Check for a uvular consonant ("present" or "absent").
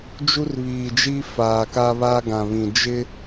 absent